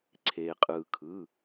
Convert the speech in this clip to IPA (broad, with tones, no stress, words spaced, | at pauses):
ǀʰeː˩qʼɯː˩ kʰɯ˩˧˩